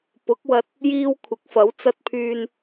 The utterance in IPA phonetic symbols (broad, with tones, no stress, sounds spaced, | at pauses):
p ʊ˨˥ k̚ w ɐ˧ t̚ | j iː˧ w kʷʰ ɪ˨˥ k̚ f ɐ˨˥ w t͡s ɐ˧ t̚ pʰ yː˧ n